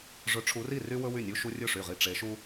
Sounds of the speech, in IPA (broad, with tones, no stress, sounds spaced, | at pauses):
ʐ ɵ˨˦ ʈ͡ʂʰ u˨˦ r i˥˩ r y˦ w ɵ˦ w y˥˩ nʲ u˦ ʃ u˦ rʲ ɵ˥˩ ʂ y˧˩ ʁ i˧˩ ʈ͡ʂ e˨˦ ʃ u˦